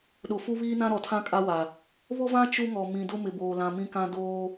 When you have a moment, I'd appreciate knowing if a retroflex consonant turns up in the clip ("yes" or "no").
no